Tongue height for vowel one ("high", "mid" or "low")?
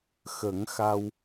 mid